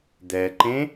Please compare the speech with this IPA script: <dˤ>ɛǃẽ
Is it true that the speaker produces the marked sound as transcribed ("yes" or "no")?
no